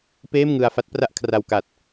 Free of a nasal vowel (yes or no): yes